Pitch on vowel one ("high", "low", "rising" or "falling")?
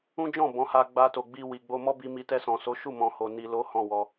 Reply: high